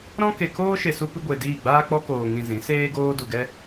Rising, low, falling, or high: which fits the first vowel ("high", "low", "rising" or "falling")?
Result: high